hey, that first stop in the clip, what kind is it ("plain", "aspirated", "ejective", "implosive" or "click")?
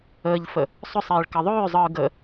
plain